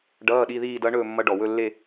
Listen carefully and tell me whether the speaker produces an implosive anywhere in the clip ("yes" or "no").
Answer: yes